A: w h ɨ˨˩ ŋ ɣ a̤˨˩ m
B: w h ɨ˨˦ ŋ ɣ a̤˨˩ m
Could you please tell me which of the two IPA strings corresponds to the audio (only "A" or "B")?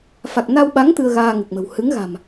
B